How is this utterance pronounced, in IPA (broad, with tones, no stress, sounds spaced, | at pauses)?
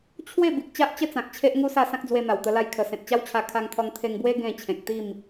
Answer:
t͡ɕʰ w e˥˧ b i˨ k̚ t͡ɕ a˦ ʔ t͡ɕ ə˦ t͡s ã˨ k̚ t͡ɕʰ e˦ ʔ ŋ u˦ s a˥˧ s ã˦ k̚ d͡z w e˧ n̪ a˨˩ w t̪ ə˧ l a˥˧ j kʰ ə˧ s ẽ˨ t̚ t͡ɕ a˦ w t͡ɕʰ a˧ kʰ a˧ ŋ t̪ʰ ɔ˧ ŋ t̪ʰ e˧ ŋ b w e˦ ɡ ẽ˥˧ t͡ɕʰ ẽ˨ k̚ t̪ i˥˧ m